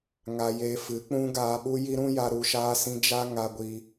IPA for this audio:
ŋ a˧ j eː˧ f ɨ˨˦ k͡p ũ˦ ɡ aː˧ ɓ u˦ j i˦ ɾ ũ˦ j a˦ ɾ u˧ ʃ aː˦ s ĩ˦ d͡ʒ a˦ ŋ a˧ ɡʷ i˧

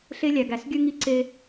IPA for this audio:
ɬ e˦ lʲ æ˨ ɡ æ˨ s ɡʲ ø˦ ŋ i˦˨ ǀ e˦

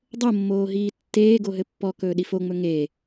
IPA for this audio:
dˤ o mː oː ɦ iː tː eː ɡ o ɦ ɘ pː ɔ k ɵː ɗ i f o ŋ͡m ɵ ŋ e

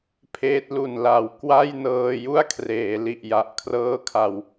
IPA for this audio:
pʰ eː˦˥ t̚ l u˨˩ n l a˩˦ w k w a˥˩ j n ɤː˧ j u˥˩ a̯ kʰ r eː˩˦ l i˨˩ ʔ j a˨˩ ʔ kʰ r ɤː˦˥ kʰ a˧ w

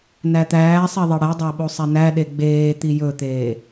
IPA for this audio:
n æ t̪ æː sˤ i ðˤ e ɽ ɛ dˤ ɑ ɓ o sˤ ɛ n æ ɗ e ɡ͡b eː t̪ i j ɵ t̪ eː

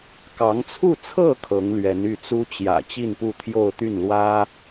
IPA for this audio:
k ɑ˧˥ ŋ t͡sʰ u˥˧ t͡sʰ ɤ˥˩ kʰ ɤ˧˥ ŋ l ɥ ɛ˧˥ n y˥˩ t͡s u˥ t͡ɕ j ä̰˨˩ t͡ɕ i˥˧ n p u˥˧ t̪ʰ j o˥˧ ʊ̯ t̪ y˥˩ n l w ä˥

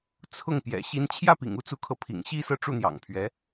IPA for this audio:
t͡sʰ ʊ˥˩ ŋ p j ɛ̰˨˩ ɕ i˧˥ n t͡ɕʰ j ä˥˩ p ḭ˨˩ ŋ u˥ t͡s u˧˥ kʰ ɤ˧˥ pʰ ḭ˨˩ ŋ ɕ i˥˧ s ɤ˥˧ ʈ͡ʂ u˥˩ n̪ j ɑ̰˨˩ ŋ pʰ ɥ ɛ˧˥

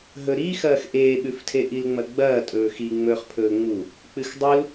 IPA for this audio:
ɦ ɵ ɾ i x ɐː x ʔ eː ɓ ʉ f tʰ e ʔ i l ŋ͡m ɐ ɡ͡b ɐː tʼ ɵː x i ŋ͡m ɵː χ pʰ ɵː ŋ͡m u | k͡p ɨ x dˤ u l

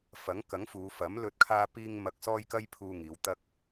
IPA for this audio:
f ɐ˨˥ ŋ k ɐ˨˥ ŋ f uː˨˧ f ɐ˨˥ m l ɵ˧ t̚ kʰ aː˧ p iː˧ ŋ m ɐ˧ k̚ s ɔː˥ j k ɐ˥ j pʰ uː˧ ŋ iː˨˧ w t̪ ɐ˧ k̚

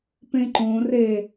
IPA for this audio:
p ẽ ǃ õ r e

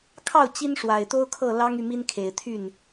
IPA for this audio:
kʰ ɑ˥˩ ʊ̯ t͡ɕ i˥ n ʂ w a˨˩ ɪ̯ t̪ o˥ ʊ̯ kʰ ɤ˥˩ l ɑ˥ ŋ y˥˩ m i˥ n kʰ e˨˩ ɪ̯ t̪ʰ y˥˩ n

